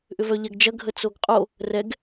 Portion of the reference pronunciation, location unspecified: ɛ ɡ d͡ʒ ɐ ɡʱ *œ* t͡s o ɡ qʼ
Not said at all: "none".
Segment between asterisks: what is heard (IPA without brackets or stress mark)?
ə